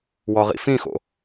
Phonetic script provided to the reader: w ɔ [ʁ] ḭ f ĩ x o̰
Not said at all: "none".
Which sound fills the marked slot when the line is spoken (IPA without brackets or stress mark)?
ʁ